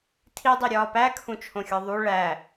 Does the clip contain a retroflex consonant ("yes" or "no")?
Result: yes